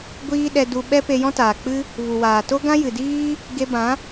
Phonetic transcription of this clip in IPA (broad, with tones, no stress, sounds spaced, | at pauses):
ɡʷ iː˦ ɗ ɛ˧ d u˧ ɓ ɛ˦ p e˧ j ɔ̃˦ t aː˨ k͡p ɨ˦ | v u˨ w aː˨ t o˦ ɡ ã˦ j ɨ˨ d iː˦ | ɡ e˧ b ã˨˦